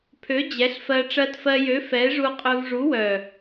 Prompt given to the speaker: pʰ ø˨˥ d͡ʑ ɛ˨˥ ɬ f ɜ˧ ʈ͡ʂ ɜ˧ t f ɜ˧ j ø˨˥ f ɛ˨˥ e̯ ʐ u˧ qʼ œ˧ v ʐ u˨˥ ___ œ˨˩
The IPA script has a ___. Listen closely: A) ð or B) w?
B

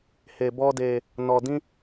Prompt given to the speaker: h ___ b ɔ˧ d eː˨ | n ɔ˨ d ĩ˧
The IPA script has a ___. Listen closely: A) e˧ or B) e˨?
B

